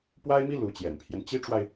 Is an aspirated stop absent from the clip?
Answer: no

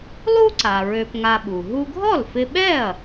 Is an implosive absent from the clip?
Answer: no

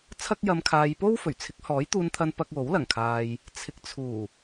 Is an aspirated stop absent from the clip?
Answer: no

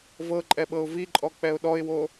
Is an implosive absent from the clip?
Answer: no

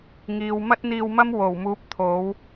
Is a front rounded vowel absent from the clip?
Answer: yes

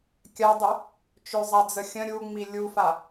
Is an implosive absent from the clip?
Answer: yes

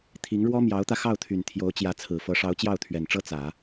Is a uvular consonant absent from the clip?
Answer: yes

